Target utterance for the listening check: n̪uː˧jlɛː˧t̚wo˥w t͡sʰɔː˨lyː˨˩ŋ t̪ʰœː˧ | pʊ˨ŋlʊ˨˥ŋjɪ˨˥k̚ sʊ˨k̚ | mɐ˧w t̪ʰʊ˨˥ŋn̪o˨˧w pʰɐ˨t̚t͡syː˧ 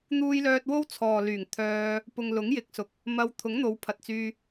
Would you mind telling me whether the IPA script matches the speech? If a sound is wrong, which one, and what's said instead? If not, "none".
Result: ɛː˧ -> œː˧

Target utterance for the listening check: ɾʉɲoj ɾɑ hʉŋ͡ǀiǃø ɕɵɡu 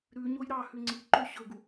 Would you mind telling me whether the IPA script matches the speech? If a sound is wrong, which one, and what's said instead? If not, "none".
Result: none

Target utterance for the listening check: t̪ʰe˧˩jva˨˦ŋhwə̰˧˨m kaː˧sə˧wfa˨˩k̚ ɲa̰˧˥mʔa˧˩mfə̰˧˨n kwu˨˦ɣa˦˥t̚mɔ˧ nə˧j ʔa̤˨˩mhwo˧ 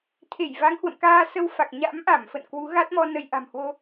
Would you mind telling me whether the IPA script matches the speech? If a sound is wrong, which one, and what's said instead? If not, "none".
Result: none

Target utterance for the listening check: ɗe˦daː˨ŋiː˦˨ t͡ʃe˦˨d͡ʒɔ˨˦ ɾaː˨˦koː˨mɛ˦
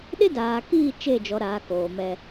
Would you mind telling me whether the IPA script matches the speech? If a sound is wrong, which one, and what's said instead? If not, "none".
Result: ŋ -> k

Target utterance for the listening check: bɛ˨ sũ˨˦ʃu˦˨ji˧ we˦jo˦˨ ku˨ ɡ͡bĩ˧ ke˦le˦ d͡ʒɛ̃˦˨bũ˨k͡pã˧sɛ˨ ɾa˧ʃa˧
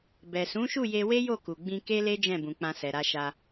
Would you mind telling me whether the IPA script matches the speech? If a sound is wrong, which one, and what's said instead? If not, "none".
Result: i˧ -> e˧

